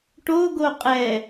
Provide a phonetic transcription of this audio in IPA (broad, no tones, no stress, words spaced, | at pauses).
ʈoɡo qʼɛ